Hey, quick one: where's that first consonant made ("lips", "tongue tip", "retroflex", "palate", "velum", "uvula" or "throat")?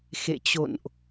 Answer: velum